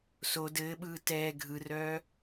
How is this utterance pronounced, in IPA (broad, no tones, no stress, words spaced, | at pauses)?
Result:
so dɘːɓɯː tɛː ɡʱɯrœː